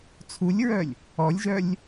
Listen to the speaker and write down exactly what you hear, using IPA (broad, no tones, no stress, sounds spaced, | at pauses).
t͡sʰ u lʲ ɹ œ lʲ | ɔ lʲ ʒ œ lʲ